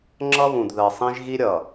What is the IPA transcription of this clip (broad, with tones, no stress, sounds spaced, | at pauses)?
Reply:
ŋ͡ǁ ʌ˦ β ũ˨ d ð ɜ˨ sˤ ĩ˦ ʒ ɣ i˦ ɾʲ ʌ˨